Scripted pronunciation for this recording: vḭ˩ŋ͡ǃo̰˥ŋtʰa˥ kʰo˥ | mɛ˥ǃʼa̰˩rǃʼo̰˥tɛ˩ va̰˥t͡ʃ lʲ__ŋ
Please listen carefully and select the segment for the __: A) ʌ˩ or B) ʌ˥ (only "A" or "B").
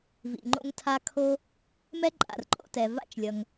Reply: A